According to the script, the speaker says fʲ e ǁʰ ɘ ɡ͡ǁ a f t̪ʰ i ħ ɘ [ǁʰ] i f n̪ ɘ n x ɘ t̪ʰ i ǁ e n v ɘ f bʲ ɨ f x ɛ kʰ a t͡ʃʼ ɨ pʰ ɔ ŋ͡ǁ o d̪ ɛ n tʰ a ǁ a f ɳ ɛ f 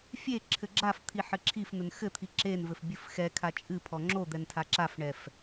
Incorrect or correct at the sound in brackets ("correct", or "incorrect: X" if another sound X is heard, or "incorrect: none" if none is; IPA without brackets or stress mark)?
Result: correct